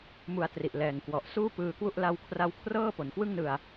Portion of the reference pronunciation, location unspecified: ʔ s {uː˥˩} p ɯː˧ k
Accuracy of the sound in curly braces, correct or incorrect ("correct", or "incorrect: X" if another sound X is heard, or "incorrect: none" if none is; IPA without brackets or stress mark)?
correct